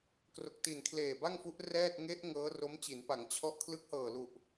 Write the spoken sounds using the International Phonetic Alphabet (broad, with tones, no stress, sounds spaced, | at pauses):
k r o˨˩ k̚ t i˨˩ n kʰ l eː˨˩ b a˥˩ ŋ f u˦˥ ʔ r ɛː˥˩ t̚ ŋ e˦˥ ʔ ŋ ɤː˦˥ r o˦˥ m t͡ɕ i˩˦ n p a˩˦ ŋ t͡ɕʰ ɔ˦˥ ʔ kʰ l ɯ˦˥ k̚ h ɤː˨˩ l u˨˩ ʔ